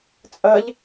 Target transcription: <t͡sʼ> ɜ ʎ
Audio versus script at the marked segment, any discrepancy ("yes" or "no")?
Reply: no